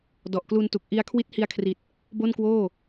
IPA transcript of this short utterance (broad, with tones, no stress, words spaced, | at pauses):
dɔ˨˩ʔklu˧ntu˨˩k̚ ʔi˧a̯ kʰwi˦˥t̚hi˧a̯kʰri˨˩t̚ | bo˥˩nkwoː˥˩